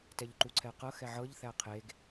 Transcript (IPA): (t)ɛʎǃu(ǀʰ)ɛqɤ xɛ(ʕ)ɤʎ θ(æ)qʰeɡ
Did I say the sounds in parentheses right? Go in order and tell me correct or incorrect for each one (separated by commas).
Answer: correct, correct, correct, correct